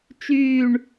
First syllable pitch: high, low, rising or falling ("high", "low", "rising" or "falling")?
falling